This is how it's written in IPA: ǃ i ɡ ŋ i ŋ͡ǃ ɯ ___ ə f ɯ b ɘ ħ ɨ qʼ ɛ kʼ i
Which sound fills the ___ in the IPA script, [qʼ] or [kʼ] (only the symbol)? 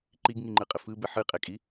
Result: qʼ